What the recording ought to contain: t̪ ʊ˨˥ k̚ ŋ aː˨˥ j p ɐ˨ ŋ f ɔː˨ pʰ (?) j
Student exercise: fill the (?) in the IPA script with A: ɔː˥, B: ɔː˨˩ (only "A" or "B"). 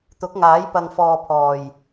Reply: B